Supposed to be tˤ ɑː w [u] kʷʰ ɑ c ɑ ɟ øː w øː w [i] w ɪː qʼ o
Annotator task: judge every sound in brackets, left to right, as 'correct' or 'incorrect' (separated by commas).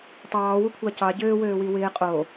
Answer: correct, correct